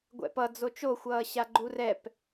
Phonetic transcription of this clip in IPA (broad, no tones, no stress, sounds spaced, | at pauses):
ɡʷ ɛ̰ p ʌ d͡z o t͡ʃ o xʷ ʌː ɕ a ɡ͡ǃ u r ɛ p